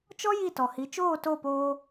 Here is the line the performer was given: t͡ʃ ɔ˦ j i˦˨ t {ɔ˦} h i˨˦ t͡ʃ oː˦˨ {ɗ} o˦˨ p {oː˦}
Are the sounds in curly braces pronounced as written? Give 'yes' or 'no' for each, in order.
no, no, no

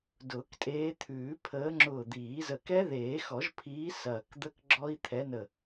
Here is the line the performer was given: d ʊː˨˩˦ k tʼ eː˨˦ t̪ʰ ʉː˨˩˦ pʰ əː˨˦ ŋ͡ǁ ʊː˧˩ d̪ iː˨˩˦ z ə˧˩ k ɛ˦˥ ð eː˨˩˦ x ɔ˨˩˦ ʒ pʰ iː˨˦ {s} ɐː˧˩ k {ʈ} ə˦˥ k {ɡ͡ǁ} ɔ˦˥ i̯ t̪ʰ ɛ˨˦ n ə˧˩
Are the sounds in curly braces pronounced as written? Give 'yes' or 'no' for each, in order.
yes, no, yes

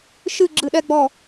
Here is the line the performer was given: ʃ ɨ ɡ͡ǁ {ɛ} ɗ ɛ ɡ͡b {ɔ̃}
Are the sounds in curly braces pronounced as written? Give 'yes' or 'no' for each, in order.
no, no

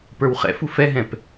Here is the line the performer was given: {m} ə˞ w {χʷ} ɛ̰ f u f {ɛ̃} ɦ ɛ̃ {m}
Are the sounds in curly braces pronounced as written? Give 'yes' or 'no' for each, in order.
no, no, no, no

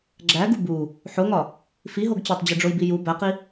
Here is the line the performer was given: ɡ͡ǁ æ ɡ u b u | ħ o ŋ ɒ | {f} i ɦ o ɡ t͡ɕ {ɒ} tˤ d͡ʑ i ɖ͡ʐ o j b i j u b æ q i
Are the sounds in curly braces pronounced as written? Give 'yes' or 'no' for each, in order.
yes, yes

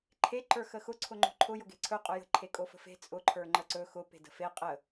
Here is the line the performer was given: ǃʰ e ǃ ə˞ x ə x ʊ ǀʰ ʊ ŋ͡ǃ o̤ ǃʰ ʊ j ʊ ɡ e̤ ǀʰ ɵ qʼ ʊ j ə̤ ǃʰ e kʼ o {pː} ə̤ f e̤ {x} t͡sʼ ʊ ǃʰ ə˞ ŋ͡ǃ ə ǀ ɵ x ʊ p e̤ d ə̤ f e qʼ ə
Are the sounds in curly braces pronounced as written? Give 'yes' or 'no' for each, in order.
no, no

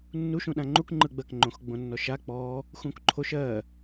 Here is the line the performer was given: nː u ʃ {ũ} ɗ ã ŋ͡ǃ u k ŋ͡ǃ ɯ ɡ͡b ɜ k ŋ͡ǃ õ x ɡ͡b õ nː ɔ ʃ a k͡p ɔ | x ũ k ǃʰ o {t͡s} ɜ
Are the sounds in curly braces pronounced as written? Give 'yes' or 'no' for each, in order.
yes, no

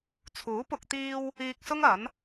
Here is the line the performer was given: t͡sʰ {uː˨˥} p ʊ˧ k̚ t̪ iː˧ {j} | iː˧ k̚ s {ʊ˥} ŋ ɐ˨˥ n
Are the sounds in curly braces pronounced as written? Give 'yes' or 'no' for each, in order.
yes, no, yes

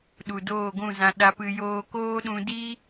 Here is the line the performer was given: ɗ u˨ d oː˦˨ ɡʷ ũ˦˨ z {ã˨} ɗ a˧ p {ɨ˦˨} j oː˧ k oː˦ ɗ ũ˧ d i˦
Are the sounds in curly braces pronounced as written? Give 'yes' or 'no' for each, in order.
no, no

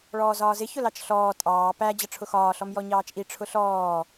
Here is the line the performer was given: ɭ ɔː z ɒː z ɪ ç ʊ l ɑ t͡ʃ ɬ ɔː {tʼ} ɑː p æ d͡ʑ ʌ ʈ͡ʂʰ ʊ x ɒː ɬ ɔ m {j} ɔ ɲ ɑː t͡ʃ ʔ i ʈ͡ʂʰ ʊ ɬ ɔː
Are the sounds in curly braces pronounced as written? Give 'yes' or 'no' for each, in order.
yes, yes

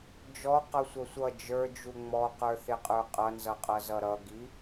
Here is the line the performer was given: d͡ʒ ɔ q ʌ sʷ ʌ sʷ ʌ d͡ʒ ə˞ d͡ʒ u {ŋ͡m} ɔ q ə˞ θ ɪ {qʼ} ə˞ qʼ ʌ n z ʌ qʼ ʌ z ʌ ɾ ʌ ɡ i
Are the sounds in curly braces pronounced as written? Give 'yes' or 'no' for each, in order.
yes, yes

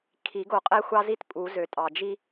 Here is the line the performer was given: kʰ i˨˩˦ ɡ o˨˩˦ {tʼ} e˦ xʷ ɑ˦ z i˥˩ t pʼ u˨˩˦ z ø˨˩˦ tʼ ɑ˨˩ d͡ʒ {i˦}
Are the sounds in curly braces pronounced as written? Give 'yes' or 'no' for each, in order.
no, yes

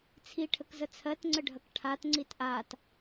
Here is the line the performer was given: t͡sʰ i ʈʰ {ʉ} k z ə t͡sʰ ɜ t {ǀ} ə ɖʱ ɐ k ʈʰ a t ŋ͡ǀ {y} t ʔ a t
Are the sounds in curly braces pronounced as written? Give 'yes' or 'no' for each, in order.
no, no, no

